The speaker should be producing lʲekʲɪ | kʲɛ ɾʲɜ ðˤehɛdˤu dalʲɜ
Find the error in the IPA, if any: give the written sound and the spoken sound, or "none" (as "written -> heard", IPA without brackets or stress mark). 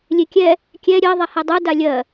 ɪ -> ɛ